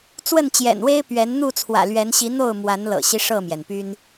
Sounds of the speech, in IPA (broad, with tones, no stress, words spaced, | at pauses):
t͡swə˥˨nt͡ɕjɛ̰˨˩nwe˦ɪ̯ pɥɛ˨˦n n̪u˥˨t͡sʰwä̰˨˩lɥɛ˨˦nɕi˨˦ n̪o˥˨ʊ̯ mwa˨˦nlɤ̰˨˩ɕi˦ ʂɤ˥˨mjɛ˩npy˦n